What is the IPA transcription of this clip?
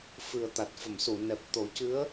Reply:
f ɨ˨˩ ə̯ t̪ a˨˩ t̚ f ə˨˩˨ m s u˨˩˨ n ɛ˨˩ p̚ t̪ o˨˩˦ c ɨ˧˥ ə̯

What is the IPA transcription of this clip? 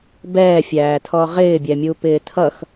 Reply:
b ɛː fʲ æː tʰ ɔ ʁ ɪː bʲ ɛ mʲ u p ɪː tʰ ʌ x

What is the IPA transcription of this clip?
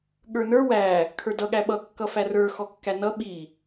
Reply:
ɠ ə˞ n ə˞ w æ | kʰ ə˞ d ʌ ɠ æ ɓ ʌ kː ʌ f æ r ə˞ x ɔ kː æ n ʌ ɓ i

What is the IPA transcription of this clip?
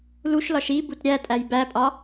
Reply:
l u ʃ l ɒ ʃ i b u t ɾʲ æ tʼ æ j b æ pʼ ɒ

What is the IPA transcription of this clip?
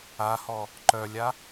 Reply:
a h ɔ | ǃ œ lʲ a

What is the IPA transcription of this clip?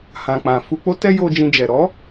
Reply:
h ã˨ k͡p ã˨ f u˧ k͡p o˦ t ɛ˦ j o˧ d͡ʒ ĩ˧ d͡ʒ ɛ˨ ɾ ɔ˨˦

